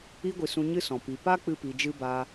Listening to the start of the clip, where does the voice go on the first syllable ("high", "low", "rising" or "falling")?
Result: high